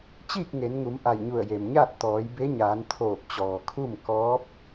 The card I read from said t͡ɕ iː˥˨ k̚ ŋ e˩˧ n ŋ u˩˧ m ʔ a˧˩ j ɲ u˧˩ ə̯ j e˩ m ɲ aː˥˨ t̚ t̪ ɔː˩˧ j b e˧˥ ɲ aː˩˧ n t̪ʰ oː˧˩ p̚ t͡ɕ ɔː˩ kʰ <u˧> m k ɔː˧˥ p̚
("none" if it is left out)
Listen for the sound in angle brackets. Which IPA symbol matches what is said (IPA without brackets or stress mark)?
u˥˨